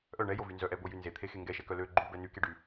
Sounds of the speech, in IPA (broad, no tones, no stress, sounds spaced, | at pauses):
ʔ œ ɳ ɛ j o v y n z œ ʔ ɛ b o j y n z e t̪ʰ e x e ŋ ɡ ɛ ʃ ɛ k œ l ø ɡ͡ǃ y b ɛ n y k e ɖ y